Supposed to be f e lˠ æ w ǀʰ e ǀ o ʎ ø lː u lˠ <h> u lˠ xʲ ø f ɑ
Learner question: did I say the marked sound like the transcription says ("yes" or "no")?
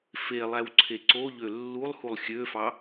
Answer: yes